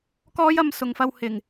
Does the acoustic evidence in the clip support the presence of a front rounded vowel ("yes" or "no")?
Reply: no